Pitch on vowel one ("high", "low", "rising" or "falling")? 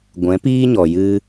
rising